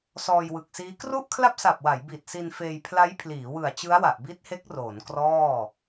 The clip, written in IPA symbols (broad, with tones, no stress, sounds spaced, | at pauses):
s ɔː˧ j w ɯ˨˩ k̚ s iː˦˥ k r u˥˩ ʔ kʰ l a˥˩ p̚ s a˨˩ p̚ w a˩˦ j b i˨˩ t̚ s i˧ n f eː˧ j pʰ l a˦˥ j pʰ l iː˩˦ w ɯ˨˩ a̯ t͡ɕ ɯ˦˥ a̯ w a˨˩ ʔ b i˦˥ t̚ h e˦˥ k̚ r oː˩˦ n k r ɔː˥˩